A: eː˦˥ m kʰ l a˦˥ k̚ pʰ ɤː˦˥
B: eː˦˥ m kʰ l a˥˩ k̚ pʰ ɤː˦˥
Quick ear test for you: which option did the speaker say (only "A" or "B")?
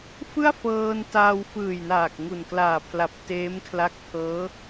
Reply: A